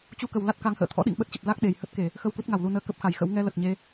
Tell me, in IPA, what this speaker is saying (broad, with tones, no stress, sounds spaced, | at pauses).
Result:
t͡ɕ u˧ k ə˨˩ w l a˦˥ t̚ k a˨˦ ŋ h ə̰ː˧˨ t̪ʰ ɔ̰˧˥ ɗ ḭ˧˨ ŋ ɓ ə˦˥ t̚ t͡ɕ ə˨˩ p̚ l a˦˥ k̚ ɗ e˨˩ j h ə˦˥ t̚ k e˧˩˨ | x ə˧ w k u˦˥ t̚ ŋ a˧˩ w l u˧ n əː˧ k ə˦˥ p̚ x a˨˩ j x ə̰˧˥ w ŋ ɛ˧ l ə˨˩ t̚ ɲ e˨˦